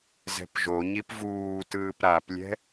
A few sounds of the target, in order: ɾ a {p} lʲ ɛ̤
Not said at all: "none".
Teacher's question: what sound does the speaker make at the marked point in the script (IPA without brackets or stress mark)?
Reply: p